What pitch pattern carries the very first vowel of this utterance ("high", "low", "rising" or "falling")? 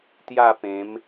falling